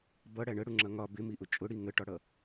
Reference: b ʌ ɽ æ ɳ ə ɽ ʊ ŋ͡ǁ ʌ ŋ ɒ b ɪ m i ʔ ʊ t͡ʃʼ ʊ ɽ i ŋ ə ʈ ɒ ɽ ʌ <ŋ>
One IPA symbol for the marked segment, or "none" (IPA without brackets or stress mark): none